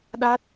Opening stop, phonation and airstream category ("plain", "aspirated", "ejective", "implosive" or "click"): implosive